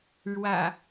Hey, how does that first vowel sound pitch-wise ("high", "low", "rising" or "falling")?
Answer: low